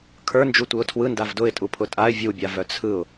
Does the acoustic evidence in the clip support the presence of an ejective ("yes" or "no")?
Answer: yes